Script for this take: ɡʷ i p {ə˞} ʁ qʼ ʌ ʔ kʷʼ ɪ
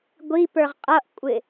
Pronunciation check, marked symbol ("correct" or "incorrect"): correct